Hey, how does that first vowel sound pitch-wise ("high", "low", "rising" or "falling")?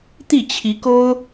falling